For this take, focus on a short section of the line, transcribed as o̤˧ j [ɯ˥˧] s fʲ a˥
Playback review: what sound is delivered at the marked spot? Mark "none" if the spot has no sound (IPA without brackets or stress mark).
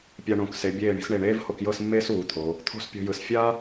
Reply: ɯ˩˧